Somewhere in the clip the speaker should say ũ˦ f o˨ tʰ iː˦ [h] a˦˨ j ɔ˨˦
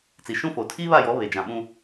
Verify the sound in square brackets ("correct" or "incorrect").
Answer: incorrect